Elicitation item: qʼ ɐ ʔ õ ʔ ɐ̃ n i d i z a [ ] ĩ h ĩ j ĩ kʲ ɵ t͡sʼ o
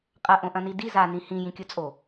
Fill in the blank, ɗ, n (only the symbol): n